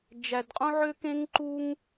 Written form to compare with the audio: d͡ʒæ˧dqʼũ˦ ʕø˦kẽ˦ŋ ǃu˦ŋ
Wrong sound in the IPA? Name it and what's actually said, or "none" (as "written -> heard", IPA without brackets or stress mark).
none